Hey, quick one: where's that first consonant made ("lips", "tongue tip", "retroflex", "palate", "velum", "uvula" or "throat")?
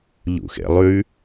palate